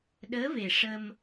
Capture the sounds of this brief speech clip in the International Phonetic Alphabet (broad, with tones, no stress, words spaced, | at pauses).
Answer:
ɗəː˧˥ve˨˩ ʂə˧m